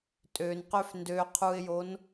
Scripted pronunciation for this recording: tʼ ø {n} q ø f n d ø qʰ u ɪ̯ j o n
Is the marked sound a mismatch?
no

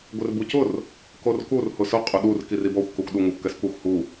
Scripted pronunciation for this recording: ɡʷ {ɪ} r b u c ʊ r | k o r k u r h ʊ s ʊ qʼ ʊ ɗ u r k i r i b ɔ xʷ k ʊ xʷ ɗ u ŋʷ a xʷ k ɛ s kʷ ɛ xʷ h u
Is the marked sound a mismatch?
no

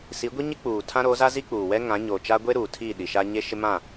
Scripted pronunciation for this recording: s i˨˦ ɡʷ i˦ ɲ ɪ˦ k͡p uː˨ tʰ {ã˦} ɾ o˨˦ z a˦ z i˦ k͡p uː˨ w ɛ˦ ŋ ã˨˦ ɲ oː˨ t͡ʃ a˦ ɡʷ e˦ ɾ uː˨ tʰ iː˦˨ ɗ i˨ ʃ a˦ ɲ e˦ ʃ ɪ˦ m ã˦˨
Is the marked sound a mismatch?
no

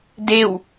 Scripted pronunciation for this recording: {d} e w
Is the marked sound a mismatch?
no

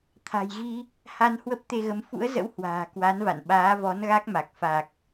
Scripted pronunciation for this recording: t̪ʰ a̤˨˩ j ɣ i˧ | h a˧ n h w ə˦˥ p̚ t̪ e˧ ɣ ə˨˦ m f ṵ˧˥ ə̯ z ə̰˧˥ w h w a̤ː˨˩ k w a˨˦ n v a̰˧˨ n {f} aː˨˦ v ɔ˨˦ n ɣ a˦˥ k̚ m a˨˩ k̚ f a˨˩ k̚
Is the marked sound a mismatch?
yes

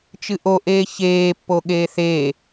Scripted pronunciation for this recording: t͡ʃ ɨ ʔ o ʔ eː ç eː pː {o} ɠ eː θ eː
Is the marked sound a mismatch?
no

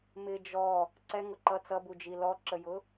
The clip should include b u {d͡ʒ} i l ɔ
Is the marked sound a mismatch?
no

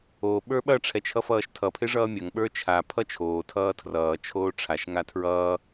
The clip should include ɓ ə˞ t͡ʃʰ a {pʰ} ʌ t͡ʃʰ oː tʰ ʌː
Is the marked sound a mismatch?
no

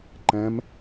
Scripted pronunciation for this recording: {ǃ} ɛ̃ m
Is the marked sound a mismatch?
no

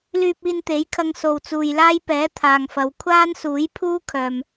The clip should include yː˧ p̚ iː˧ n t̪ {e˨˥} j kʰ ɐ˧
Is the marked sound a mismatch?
no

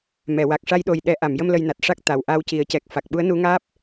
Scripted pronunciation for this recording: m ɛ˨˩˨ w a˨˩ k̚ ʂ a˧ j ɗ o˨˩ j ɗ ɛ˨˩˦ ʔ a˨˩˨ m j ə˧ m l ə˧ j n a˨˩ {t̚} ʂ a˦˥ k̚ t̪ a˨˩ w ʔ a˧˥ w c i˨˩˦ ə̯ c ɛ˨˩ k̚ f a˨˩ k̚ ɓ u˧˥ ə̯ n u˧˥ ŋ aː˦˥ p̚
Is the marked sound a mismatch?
no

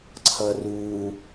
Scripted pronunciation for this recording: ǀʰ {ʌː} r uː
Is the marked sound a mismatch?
no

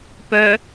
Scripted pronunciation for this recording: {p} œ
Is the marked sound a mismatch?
no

